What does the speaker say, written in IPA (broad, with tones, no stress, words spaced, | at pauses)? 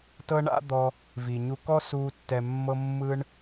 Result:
tɤ˥ɳa̰˥d̪ɔ˧ | vi˩ɲu˧ kɔ˥suː˧ tːɛ˧mːɤ˥ mːɯ˥ɳ